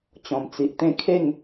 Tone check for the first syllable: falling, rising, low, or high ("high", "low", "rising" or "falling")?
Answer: low